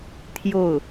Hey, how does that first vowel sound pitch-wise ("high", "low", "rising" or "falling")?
falling